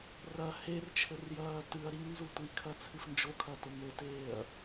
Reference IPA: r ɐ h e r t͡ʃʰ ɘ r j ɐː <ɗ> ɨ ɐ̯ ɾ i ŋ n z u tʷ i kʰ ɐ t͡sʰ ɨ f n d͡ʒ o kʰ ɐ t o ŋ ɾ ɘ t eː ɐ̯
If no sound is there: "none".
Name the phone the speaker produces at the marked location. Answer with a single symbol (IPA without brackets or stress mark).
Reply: t